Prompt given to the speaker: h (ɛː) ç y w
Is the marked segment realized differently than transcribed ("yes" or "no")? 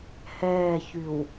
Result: no